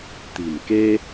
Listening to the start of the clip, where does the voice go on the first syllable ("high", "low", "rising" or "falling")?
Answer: low